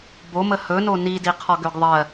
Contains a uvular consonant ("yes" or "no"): yes